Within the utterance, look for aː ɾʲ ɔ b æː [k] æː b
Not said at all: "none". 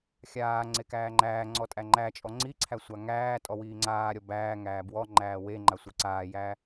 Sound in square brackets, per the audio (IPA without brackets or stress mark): ŋ